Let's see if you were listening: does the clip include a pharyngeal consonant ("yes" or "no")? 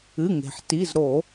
yes